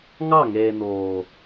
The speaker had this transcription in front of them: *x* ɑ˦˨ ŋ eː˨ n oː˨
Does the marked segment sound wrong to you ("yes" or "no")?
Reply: yes